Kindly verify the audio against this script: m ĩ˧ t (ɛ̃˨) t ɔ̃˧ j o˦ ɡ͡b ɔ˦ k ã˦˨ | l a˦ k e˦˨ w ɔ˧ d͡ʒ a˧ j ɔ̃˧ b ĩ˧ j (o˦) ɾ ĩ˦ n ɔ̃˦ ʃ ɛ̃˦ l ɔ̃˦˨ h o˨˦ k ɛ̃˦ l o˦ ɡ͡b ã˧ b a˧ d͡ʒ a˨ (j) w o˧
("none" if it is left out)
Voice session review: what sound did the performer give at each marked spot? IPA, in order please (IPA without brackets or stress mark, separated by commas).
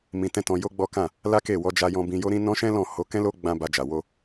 ɛ̃˦, o˦, none